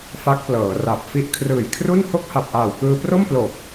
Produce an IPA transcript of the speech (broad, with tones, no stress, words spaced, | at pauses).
fa˦˥k̚plɤː˩˦ra˨˩p̚fi˥˩ʔ kʰrɯː˨˩jkʰru˥˩n ho˥˩k̚ha˨˩p̚ʔaː˨˩w kɯː˧pro˥˩mplo˨˩k̚